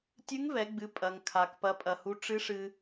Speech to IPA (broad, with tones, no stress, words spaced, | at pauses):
tʲɨ˧˥ŋvɛ˩˧ɡ͡bɨ˩˧ pʼɐ˩ŋkʰa˩k pɐ˩˧pʼɐ˩hu˩˧ ʈ͡ʂɨ˧˥ʂɨ˧